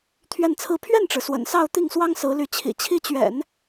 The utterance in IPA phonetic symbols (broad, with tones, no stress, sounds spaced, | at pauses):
t̪ʰ ɥ ɛ˥˧ n t͡sʰ ɹ̩˥˧ pʰ ɥ ɛ˥˩ n ʈ͡ʂ ɻ̩˩ s w ə̰˨˩ n s ɑ˥˧ ʊ̯ t̪ i˥˩ ŋ s w ɑ˥ ŋ s ɹ̩˧˥ l y˧˥ t͡ɕʰ ḭ˨˩ t͡ɕʰ i˥˩ t͡ɕ ɥ ɛ̰˨˩˦ n